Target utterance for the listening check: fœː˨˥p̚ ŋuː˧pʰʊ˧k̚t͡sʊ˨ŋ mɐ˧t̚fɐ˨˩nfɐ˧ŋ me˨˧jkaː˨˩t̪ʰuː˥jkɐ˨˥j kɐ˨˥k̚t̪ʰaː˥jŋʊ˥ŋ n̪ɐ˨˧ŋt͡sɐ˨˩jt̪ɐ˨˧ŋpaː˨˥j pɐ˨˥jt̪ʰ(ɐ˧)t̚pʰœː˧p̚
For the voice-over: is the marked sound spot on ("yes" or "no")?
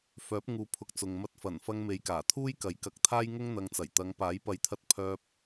yes